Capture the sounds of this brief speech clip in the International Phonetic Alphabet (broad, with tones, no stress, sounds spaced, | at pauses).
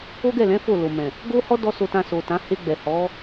o˦ ɡ ɛ˦˨ l ɛ̃˨˦ f o˦˨ l o˨ m ɛ̃˨ | ɡ o˦ h ɔ˦ d ɔ˦ s o˧ t ã˧ s o˨ t ã˨˦ h e˧ ɡ͡b ɛ˨ h ɔ˨˦